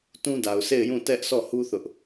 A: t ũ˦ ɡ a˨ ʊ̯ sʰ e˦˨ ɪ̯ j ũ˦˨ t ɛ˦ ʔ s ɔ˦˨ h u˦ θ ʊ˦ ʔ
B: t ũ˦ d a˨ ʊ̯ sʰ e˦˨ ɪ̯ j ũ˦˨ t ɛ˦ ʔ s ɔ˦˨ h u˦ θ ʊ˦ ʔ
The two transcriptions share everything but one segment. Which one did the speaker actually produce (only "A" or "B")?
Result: B